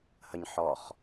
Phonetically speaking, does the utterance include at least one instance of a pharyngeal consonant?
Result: yes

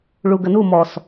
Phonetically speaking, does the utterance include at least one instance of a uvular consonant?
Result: no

